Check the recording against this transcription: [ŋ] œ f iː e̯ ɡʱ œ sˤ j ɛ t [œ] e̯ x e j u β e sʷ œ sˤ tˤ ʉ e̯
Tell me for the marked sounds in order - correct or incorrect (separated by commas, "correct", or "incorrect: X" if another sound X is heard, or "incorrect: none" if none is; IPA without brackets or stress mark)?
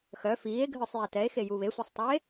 incorrect: x, incorrect: ɛ